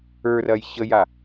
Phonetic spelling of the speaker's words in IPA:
ə˞ r ɐ j ɕ ə j a

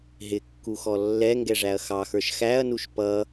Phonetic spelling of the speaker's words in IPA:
ɦ ɪ kː u x ɔ lː ɛ ŋ ɡ ɛ ʐ æ ɐ̯ x ɑ x ə˞ ʃ x æ ɐ̯ n u ʃ p ʌ

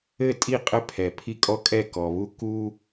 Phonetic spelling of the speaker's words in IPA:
ɘ˦˨ tʼ i˦˨ qʼ ɘ˦ pʰ ɛ˨ pʰ i˦ kʼ ɔ˦ kʼ ɛ˦˨ k ɔ˨ β u˦ k u˦

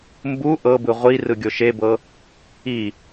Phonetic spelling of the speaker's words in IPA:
m b u ʔ ɤ b ɯ ʁʷ i r ɯ ɡʲ o ʃ e b ɤ | i

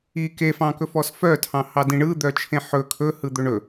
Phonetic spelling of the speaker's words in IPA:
i k e f ɑ̃ k ɵ f ɔ s f œ tʰ ɑ̃ h ɑ d ĩ ɳ ɯ d̪ œ t͡ʃʰ ẽ ħ ɵ kʰ ɵ h ɯ d̪ ɵ ɳ ɵ

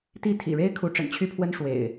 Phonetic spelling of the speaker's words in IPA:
t̪ i˥˨ t̪ʰ ḭ˨˩ ɻ e˦ ɪ̯ kʰ u˨˦ ʈ͡ʂ ə̰˨˩ n t͡ɕʰ y˦ pʰ w ə˦ n ʂ w ḛ˨˩ ɪ̯

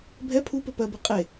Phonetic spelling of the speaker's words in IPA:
bʱ ɛ pʰ u p ɘ p ɜ b i qʼ e

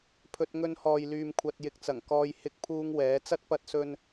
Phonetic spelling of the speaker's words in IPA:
pʰ ɵ˧ t̚ ŋ ɵ˧ n h ɔː˨ j l yː˨ m kʷʰ ɐ˨ t̚ j ɪ˨ k̚ t͡s ɐ˨˩ ŋ k ɔː˧ j h ɪ˥ k̚ pʰ uː˥ ŋ w ɛː˨˥ t͡s ɐ˥ t̚ p ɐ˧ t̚ s ɵ˧ n

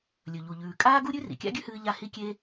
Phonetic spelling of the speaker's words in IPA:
lʲ ɵ˩ ʎ u˩ ʎ ʉː˩ kʼ aː˥ ɡ u˥ ɾʲ ʉ˥ r ḭ˩ kʲ a̰˥ ɡʲ ʉ˥ h ɨː˧ ʎ a˧ h i˧ kʲ e˧

